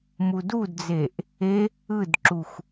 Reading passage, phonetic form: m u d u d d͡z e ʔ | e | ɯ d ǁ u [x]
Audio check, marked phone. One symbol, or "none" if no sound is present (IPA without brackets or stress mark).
x